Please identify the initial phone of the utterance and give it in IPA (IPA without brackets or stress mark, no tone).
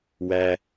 w